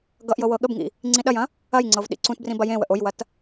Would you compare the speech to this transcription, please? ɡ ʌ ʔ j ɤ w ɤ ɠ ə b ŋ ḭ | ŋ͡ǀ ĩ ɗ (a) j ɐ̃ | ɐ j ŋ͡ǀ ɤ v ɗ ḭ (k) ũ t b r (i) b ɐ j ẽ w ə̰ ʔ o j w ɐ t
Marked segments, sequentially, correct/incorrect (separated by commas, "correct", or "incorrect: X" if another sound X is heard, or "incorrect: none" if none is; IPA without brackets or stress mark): incorrect: ɐ, incorrect: ǀ, incorrect: ĩ